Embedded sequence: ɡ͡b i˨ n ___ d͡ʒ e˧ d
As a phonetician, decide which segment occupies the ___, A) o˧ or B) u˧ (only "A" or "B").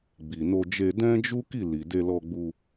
A